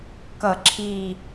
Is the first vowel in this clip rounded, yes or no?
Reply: no